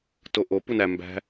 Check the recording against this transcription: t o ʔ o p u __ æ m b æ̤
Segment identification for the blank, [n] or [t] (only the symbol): n